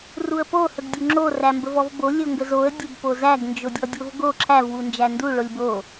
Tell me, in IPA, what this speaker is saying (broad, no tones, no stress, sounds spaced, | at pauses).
r u ə̯ p o h ə ɡ dʲ o ŋ͡ǁ o r æ m b ə v ɔ v b o lʲ o ŋ ɡ ə z o ə̯ dʲ ə b p o z æ ɡ n d͡ʒ o dʲ ɔ dʲ o v ɡ o ǁʰ æ v w u n d͡ʒ æ n d u ɭ o lʲ b o